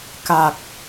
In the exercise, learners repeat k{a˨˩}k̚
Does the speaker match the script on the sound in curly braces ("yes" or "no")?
yes